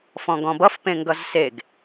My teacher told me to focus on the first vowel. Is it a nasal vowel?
yes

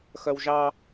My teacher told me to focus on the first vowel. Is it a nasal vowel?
no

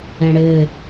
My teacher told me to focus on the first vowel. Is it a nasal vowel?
yes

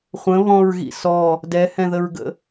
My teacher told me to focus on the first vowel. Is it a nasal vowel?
yes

